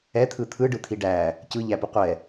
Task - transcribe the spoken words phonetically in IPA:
ɛt̪ʰɯ t̪ʰɯɖɯ t̪ʰiɖæ | cɯʎæpu qʷɛ

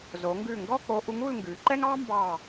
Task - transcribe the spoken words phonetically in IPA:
zo˩˧ŋɡʉ˧˩ŋɡɔ˥˧k͡po˧ ʔu˧ŋu˥˧lŋɡʉ˩˧ǃɛ˥ŋ ɑ˥mbɑ˧˩

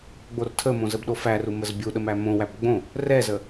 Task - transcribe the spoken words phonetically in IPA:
ɡ͡bortʰəmõ zəbɗofæru məzbʲuɗə mæmõwæb ɡ͡bõ | rɛzə

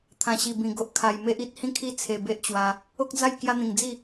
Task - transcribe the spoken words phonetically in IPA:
t̪ʰã˨˩ɕi˨˩bĩ˨˩ ɡo˦ʔkʰa˧j me˦ʔ i˦t̚hĩ˦kʰi˦ t͡sʰe˧be˦ʔt͡ɕwa˧ | o˦k̚d͡za˥˧j kja˦n̪ĩ˨˩ŋ d͡zi˥˧

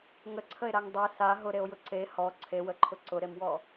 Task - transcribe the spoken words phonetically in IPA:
ŋəǀʰəe̯ɾaŋ dˤe sa ɦʊɾeo̯ jʊǀe hɔ ǀʰewəǃʰʊ ǀʊɾemwɔ

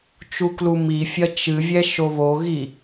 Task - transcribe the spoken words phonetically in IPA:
t͡ʃuklumifʲɐ t͡ʃɨvʲɛʃo βoɣi

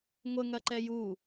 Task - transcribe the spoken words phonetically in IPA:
ŋʷəŋɐǃɛ ju

